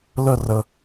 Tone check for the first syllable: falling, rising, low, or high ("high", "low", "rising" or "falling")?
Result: falling